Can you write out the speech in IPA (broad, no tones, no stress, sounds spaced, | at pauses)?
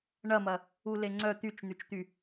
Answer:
ɳ ɐ m ɐ | u l e ŋ͡ǀ œ t̪ y t͡ʃ n̪ y t͡ʃ t̪ y